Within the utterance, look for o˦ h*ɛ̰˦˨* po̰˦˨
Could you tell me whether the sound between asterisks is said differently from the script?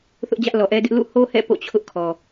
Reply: no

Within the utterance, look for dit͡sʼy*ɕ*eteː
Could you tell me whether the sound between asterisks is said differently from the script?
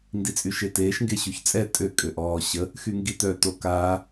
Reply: yes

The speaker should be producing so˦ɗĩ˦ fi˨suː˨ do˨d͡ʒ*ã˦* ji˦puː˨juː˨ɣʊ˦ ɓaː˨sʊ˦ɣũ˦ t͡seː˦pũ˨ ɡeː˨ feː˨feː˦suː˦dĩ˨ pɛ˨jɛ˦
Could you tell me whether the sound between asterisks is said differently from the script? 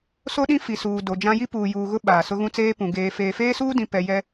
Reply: no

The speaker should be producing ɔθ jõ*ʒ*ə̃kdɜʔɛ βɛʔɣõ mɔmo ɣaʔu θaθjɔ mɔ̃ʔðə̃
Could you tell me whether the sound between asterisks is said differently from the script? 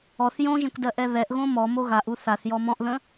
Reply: no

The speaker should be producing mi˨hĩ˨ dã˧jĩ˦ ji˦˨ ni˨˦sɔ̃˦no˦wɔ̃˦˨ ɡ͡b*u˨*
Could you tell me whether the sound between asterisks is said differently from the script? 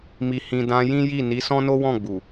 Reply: no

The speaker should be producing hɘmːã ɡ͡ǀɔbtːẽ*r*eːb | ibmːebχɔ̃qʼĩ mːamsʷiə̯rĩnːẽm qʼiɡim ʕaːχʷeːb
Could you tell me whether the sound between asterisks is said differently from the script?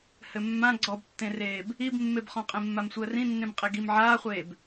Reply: no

